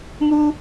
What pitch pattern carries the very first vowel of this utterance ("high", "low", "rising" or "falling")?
high